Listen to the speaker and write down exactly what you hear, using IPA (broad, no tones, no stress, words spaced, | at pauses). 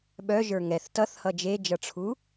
ɓœ ʒə˞ŋɛθ tʌθhʌ d͡ʒed͡ʒʌʈ͡ʂʰu